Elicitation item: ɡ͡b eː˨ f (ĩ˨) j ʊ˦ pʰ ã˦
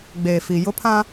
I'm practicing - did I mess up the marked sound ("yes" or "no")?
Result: yes